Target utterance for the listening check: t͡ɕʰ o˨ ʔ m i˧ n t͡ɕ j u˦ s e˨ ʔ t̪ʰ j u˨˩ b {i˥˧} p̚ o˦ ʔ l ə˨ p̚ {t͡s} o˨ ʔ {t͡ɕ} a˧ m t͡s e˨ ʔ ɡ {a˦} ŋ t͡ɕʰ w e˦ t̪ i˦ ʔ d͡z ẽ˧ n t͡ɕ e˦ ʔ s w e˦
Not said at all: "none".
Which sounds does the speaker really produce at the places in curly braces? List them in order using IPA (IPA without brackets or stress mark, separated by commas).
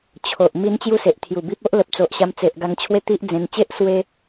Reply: i˦, t͡s, ɕ, a˧